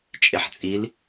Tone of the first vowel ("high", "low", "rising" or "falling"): low